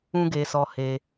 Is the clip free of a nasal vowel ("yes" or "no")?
no